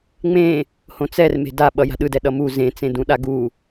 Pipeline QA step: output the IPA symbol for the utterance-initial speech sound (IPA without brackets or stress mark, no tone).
ŋ͡m